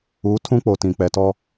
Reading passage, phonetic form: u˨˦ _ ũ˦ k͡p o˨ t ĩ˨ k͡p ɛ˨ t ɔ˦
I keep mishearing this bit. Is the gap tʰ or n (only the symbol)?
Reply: tʰ